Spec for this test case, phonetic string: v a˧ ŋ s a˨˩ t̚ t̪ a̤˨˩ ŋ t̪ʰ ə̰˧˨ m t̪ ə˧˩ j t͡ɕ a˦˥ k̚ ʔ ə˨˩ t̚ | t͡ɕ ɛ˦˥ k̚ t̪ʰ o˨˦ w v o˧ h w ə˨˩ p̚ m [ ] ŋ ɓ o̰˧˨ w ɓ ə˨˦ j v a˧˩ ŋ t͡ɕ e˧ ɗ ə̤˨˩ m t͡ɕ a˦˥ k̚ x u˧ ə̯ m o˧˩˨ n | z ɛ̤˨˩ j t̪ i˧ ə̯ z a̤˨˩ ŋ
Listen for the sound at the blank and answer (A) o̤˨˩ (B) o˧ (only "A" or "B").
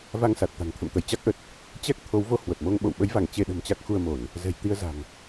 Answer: B